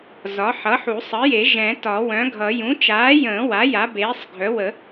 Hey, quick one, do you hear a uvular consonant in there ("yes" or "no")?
no